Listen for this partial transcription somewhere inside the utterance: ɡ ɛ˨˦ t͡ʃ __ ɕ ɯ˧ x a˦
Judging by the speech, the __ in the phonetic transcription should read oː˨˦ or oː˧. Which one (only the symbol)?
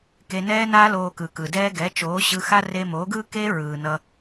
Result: oː˨˦